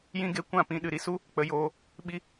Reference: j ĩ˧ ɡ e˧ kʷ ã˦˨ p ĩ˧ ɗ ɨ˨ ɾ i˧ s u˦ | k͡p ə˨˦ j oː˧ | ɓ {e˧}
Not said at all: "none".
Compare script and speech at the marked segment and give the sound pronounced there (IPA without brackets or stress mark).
i˧